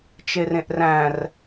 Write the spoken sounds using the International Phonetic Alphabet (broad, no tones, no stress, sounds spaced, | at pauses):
t͡ʃ e r ẽ ʔ r æ̃ r